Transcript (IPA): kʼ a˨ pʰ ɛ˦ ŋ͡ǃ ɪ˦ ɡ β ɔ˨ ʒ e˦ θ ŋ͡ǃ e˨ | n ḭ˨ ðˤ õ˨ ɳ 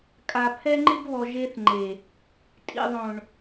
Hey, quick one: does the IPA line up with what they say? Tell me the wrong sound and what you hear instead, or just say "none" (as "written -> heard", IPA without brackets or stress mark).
n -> tʼ